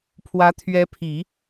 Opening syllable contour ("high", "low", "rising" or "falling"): rising